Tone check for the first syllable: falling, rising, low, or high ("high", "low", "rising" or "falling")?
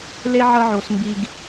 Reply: high